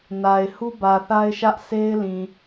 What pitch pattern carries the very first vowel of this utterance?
low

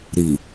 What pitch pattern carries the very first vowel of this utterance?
low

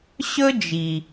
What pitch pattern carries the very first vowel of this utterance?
high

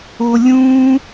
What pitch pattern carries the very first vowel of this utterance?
low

